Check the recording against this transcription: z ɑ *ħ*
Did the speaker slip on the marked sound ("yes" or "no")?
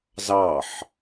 no